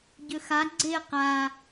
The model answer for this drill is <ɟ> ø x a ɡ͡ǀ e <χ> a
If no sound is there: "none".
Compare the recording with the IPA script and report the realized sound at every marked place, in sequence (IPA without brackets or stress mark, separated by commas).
ɟ, q